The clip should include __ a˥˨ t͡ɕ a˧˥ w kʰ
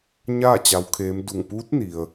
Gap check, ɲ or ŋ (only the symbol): ɲ